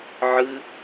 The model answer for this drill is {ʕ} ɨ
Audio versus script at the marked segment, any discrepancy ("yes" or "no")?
no